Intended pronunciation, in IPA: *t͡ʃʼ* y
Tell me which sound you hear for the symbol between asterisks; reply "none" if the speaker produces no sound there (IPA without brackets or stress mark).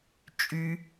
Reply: t͡ʃʼ